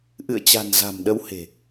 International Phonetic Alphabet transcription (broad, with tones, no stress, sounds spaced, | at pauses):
ʔ ɨ̰˧˨ ə̯ t͡ɕ a̤˨˩ n z a̤˨˩ m ɗ ə˨˦ w h e̤˨˩